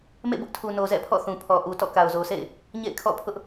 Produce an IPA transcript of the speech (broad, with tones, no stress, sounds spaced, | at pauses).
m ḛ˦˨ b ʊ˦ ʔ tʰ u˨ n o˨ z ɛ̰˦˨ pʰ ɔ̰˦˨ θ ũ˨ pʰ ɔ˨ ʔ u˨ t ɔ̰˦˨ k a˨ ʊ̯ z o˨ sʰ ḛ˦˨ ɪ̯ | ɲ ḛ˦˨ ɪ̯ kʰ ɔ̰˦˨ pʰ ʊ˦ ʔ